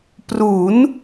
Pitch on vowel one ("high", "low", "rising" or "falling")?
rising